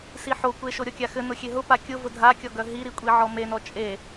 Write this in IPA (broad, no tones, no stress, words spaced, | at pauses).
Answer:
siħokʷeʃo ɾʲɔkʲaxɘ nʊxʲeɦʊ pakʲʊ vʊdʱakʲɔɡœ ɦiɾikʷʼiʕɔ menɔ t͡ʃʼe